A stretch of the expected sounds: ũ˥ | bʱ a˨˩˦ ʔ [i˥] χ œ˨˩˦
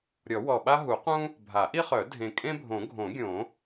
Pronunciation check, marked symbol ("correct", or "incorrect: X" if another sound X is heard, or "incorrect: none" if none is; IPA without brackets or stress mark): correct